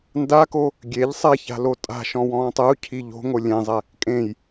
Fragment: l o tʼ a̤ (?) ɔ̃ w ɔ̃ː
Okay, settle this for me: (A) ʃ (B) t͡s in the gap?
A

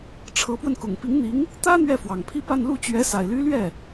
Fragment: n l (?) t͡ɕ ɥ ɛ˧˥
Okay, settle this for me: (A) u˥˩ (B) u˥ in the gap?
A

